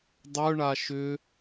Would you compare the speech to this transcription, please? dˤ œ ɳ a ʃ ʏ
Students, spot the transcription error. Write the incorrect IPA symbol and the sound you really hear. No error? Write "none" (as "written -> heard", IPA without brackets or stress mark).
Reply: none